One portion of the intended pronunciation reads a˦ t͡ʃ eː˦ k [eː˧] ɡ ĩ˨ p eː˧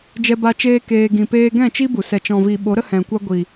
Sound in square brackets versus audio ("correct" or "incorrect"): correct